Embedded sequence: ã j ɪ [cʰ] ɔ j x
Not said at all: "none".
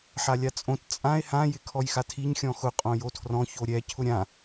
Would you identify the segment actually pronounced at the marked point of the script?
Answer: kʰ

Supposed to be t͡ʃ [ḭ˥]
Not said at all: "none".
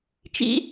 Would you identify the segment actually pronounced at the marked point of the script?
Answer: ḭ˥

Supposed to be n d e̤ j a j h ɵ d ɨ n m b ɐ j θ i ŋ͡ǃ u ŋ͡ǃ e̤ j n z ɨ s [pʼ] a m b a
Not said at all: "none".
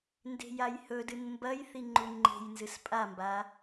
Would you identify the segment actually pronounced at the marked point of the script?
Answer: pʼ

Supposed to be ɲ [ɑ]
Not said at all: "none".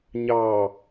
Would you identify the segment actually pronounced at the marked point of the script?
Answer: ɑ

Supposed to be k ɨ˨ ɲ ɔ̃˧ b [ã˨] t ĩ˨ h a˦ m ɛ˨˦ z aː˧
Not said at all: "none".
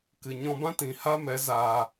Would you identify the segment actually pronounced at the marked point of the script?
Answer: ã˦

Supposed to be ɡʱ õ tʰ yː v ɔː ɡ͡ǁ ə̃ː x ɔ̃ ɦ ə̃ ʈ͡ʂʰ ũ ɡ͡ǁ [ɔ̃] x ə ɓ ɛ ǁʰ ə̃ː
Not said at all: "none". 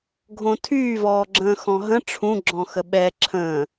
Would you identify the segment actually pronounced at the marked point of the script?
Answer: ɔ̃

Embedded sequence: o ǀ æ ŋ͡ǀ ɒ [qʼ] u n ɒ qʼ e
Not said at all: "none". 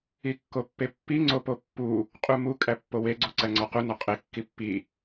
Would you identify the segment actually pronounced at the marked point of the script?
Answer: q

